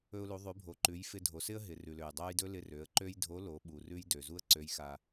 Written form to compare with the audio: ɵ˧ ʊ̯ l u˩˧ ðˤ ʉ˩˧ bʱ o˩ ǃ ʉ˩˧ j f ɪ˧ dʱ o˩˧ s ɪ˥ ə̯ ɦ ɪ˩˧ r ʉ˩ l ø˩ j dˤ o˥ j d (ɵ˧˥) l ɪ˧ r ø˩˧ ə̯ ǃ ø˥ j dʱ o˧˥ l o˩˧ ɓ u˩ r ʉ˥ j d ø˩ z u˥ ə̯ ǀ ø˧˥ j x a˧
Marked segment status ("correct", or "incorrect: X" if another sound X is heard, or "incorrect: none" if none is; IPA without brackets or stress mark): incorrect: ɵ˥